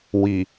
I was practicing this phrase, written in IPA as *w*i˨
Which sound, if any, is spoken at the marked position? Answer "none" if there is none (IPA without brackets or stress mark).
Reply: w